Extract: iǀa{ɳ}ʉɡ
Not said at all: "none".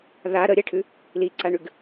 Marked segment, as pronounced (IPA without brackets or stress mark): ɳ